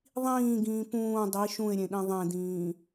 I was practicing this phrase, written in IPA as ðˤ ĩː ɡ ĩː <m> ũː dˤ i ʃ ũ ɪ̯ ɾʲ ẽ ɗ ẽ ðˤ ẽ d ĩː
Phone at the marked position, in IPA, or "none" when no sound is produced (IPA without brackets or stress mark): p